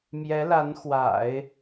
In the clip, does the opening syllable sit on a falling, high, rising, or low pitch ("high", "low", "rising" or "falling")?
rising